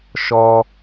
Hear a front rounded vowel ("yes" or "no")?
no